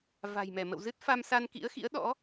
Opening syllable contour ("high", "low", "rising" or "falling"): low